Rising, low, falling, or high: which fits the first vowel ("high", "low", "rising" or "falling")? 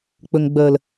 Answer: low